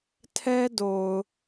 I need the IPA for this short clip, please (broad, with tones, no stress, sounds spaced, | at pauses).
tʰ ɛ˦ d o˨ ʊ̯